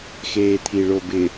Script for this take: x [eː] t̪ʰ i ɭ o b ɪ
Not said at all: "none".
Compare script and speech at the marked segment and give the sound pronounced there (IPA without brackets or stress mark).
eː